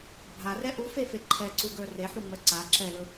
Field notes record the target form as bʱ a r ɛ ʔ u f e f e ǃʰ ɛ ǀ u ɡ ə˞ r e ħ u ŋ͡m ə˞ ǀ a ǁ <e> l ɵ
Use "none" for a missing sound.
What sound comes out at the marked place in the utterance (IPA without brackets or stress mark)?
ɛ